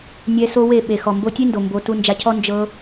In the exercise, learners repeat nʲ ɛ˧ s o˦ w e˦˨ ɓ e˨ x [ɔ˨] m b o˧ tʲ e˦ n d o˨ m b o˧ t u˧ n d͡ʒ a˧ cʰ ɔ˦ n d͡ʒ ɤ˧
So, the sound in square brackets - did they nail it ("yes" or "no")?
yes